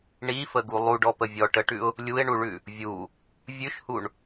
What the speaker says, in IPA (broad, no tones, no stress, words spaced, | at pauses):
ɳifəɡu lˠuɖɔpə vʲɔʈəʈʉʊ̯ | lʲuɪ̯ɳuɭʉ | vʲu | vʲʉʃhuɳ